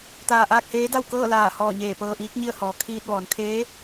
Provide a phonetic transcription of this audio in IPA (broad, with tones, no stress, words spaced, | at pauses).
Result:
t̪aː˧˩ʔaː˥˨k̚heː˧˥da˥˨w kɤː˥˨laː˧˩ hɔː˧˩ɲeː˧˩ pɤː˧ʔiː˧˥k̚ɲi˥˨ə̯ hɔː˩˧kʰiː˧t̚ʋɔː˩˧n kʰeː˧˥